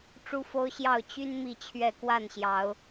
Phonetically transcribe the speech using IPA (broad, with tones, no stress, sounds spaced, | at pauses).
ʈ͡ʂ u˦ f o˦ ʊ̯ ɕ j ɑ˥˨ ʊ̯ t͡ɕ y˦ n m i˥˨ t͡ɕʰ ɥ ɛ˥˨ k w a˥˨ n ɕ j ɑ˨˦ ʊ̯